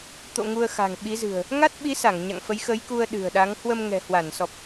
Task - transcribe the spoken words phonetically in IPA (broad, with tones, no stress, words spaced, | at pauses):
t̪o̰˧˨ ŋu˧ə̯xa̤˨˩ŋɓi˨˦zɨ̤˨˩ə̯ | ŋa˦˥t̚ɓi˨˦sa˧˩ŋ ɲa̰˧˨ŋfə˨˦jxə˨˦jku˧ə̯ ɗɨ̤˨˩ə̯ɗa˨˦ŋ hwə˧mŋɛ̤˨˩hwa˧˩nsɔ˨˩p̚